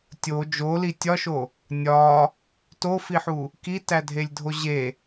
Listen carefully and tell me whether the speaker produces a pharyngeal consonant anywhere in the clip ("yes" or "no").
yes